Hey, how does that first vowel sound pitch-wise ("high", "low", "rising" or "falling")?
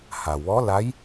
low